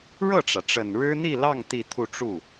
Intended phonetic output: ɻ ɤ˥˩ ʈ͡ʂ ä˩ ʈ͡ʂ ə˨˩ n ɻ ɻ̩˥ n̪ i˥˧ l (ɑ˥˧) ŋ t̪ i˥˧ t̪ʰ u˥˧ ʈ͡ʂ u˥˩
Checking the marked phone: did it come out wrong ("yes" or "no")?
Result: no